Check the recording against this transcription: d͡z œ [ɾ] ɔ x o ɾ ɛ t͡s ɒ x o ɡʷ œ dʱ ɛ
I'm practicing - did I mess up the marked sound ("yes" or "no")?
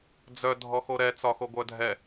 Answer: yes